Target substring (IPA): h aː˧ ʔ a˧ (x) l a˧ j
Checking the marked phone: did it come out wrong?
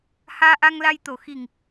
yes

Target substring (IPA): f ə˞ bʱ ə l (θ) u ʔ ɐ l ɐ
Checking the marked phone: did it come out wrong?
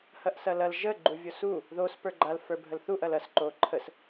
no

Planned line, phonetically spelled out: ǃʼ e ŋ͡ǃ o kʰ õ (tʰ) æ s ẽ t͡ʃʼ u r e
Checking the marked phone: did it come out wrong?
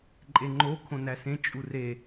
yes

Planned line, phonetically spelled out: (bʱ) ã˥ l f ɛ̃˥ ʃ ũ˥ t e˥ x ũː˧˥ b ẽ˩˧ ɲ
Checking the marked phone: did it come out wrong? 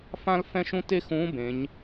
yes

